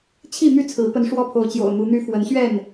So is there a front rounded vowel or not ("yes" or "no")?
yes